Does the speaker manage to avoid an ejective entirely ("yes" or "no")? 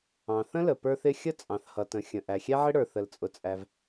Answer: no